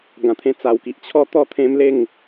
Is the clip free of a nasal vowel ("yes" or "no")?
no